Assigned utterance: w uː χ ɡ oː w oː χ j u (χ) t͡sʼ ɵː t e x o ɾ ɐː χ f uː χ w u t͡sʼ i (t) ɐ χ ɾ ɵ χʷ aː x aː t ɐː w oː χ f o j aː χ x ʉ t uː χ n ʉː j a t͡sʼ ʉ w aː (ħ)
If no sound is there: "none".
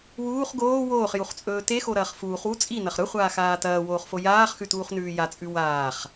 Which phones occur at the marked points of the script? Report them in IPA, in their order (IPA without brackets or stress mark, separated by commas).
χ, n, χ